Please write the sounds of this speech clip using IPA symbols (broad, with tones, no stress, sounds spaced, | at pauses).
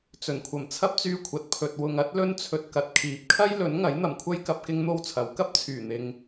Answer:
t͡s ɵ˨˩ n kʷʰ ɐ˨˩ m t͡sʰ ɐ˥ p̚ t͡s yː˧ kʷʰ ɐ˨ t̚ pʰ ɵ˨ t̚ w ʊ˨ ŋ ɐ˨˥ t̚ l ɵ˧ n t͡sʰ ɵ˨ t̚ k ɐ˨ t̚ kʰ iː˨ p̚ kʰ ɐ˥ j l ɵ˨˥ n ŋ ɐ˨˥ j n̪ ɐ˨˩ m kʷʰ ɐ˥ j k ɐ˧ p̚ k ɪ˥ ŋ n̪ o˥ w t͡sʰ ɐ˨˥ w k ɐ˥ p̚ t͡sʰ yː˨˩ n̪ ɪ˨ ŋ